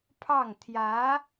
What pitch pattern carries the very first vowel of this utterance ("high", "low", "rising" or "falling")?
falling